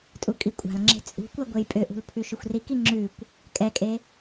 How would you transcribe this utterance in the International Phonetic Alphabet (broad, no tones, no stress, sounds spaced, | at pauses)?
tʼ u kʼ i kʷʼ a̤ l ŋ͡ǁ e̤ t͡sʼ ṳ kʷ a ɡʷ e j pʼ ʏ ʔ ṳ l pʰ ʉ ʃ ʏ xʷ r i k i ŋ͡ǁ ʉ kʷ | kʼ ɛ kʼ e